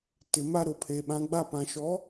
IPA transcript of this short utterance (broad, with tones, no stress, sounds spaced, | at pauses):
t ɪ˨ m a˦ ɾ ʊ˨ pʰ e˨ ɓ ã˦ ɡ͡b a˦˨ p ã˨ ʃ ɔ˨˦